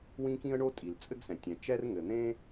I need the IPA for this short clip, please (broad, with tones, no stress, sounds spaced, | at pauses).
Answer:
w ĩ˥ k ĩ˥ ə̯ ɳ o˥ tʼ i˩ l t͡sʼ ɘ˥ ɡ s ɛ̃˩ tʲ ɛ̃˩ t͡ʃ ɛ˥ r ŋ ɘ˩ n̪ ẽ˥